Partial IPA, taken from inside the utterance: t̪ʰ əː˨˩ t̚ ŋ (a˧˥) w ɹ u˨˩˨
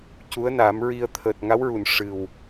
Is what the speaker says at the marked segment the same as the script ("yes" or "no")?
yes